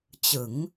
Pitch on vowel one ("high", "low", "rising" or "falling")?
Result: rising